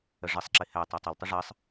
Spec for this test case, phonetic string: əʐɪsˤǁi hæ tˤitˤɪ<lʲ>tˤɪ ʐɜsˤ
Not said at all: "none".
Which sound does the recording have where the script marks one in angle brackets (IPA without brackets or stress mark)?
l